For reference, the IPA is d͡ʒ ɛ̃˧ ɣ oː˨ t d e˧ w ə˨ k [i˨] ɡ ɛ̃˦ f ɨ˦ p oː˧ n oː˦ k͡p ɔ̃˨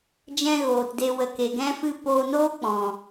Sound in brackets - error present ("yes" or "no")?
yes